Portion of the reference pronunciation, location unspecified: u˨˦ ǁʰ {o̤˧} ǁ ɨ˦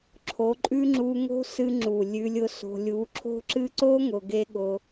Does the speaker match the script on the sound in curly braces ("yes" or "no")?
no